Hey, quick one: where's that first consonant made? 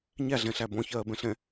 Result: palate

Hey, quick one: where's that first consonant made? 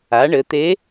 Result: retroflex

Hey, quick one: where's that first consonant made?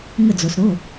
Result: velum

